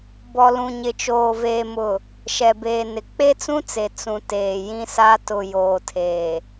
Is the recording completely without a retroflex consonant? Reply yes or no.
yes